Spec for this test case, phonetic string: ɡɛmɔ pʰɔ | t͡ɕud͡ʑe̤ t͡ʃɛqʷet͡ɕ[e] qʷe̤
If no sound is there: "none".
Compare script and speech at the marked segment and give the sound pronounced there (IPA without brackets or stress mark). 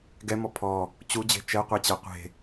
ɛ